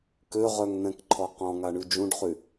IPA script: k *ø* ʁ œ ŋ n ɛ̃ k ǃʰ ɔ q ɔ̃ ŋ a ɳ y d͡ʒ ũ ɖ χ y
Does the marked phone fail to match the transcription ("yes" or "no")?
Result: no